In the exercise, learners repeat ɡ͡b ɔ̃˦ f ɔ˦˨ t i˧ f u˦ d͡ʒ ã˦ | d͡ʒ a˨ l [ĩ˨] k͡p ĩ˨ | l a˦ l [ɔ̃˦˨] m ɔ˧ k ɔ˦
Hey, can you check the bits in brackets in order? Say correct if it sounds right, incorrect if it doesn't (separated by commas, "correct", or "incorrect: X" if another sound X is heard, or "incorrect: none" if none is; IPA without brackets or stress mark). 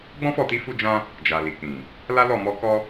incorrect: i˨, incorrect: ɔ˦˨